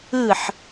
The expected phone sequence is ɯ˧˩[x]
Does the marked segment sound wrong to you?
yes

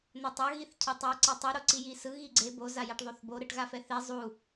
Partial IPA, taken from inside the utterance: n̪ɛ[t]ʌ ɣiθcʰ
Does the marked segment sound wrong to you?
yes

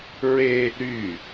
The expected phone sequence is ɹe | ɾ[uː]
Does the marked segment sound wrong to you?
yes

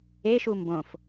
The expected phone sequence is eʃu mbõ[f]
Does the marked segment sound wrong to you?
no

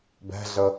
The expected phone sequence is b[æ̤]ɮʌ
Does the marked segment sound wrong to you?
no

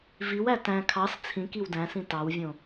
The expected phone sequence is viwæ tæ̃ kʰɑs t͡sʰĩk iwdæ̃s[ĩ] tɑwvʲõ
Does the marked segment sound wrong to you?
no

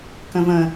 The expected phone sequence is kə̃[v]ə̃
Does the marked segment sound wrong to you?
no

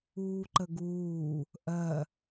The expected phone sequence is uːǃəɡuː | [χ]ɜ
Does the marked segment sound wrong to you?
yes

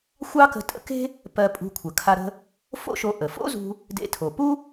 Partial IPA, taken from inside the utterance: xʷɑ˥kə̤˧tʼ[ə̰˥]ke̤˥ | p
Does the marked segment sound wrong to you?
no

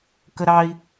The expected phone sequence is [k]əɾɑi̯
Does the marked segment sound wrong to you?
no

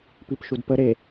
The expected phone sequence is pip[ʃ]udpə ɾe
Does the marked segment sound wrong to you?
no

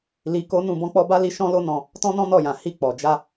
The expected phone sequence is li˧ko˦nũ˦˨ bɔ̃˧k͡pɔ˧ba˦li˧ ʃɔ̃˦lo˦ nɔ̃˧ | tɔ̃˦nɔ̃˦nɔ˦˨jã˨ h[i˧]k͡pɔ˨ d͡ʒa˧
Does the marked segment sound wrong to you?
no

